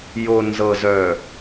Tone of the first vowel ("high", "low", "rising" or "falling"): low